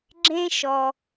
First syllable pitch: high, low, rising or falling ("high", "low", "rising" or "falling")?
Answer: high